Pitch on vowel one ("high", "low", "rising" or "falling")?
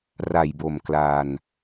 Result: low